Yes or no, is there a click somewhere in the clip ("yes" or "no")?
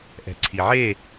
yes